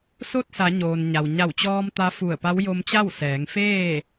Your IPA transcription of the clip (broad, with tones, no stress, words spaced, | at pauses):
so˥˨t̚sa˩˧ɲoː˩n ɲa˩wɲa˧˩wt͡ɕɔː˧m t̪a˧˥ fu˧˩ə̯pa˧˥w jo˧mt͡ɕa˥˨w sɛː˩˧ŋfeː˥˨